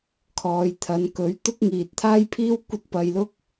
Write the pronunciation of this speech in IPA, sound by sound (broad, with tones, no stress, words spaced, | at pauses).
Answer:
kʰɔː˨˧jt̪ʰɐ˨˧n kɵ˨˥ɥ t̪ʊ˥k̚ŋiː˨t̚t̪ʰaː˥jpʰiː˥w kʷɐ˥t̚pɐ˧jlʊ˥k̚